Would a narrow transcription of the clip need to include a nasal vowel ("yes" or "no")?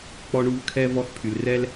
no